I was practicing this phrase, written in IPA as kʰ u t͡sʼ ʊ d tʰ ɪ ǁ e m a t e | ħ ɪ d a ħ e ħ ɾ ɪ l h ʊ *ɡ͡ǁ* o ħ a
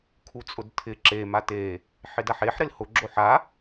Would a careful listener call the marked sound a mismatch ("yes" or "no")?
no